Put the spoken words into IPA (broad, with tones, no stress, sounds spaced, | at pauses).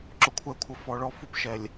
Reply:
ǁ ʊ˨ kʷʰ ɛ˨ kʷʰ ə˨ f ɔ˨ ɭ ɔ˦˨ f u˦ p ʃ ɛ˨ lʲ